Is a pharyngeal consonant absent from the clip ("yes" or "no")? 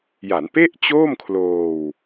yes